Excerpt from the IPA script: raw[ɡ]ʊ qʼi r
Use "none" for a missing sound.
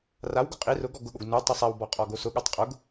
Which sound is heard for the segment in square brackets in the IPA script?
ɡ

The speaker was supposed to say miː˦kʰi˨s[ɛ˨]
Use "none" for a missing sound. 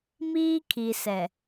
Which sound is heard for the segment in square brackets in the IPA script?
ɛ˨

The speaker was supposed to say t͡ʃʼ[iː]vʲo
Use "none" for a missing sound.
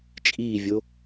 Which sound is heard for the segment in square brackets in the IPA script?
iː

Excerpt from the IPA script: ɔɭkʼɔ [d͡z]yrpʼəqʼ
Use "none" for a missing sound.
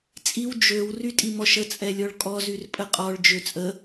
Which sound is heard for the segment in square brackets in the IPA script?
z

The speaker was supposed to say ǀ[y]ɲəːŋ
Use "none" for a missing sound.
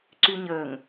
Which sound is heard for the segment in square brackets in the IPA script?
y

